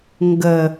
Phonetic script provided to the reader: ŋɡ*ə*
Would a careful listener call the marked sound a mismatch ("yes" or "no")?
no